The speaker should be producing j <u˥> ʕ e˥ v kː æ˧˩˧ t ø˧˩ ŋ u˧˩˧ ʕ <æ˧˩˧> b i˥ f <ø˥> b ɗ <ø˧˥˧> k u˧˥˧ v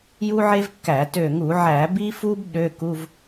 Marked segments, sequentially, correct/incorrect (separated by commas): correct, correct, incorrect, correct